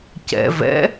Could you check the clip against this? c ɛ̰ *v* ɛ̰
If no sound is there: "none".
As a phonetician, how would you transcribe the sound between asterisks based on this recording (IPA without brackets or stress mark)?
v